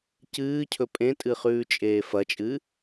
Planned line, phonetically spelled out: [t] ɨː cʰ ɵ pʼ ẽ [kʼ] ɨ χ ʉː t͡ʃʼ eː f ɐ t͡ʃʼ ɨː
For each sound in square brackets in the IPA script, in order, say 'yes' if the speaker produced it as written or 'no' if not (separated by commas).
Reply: no, no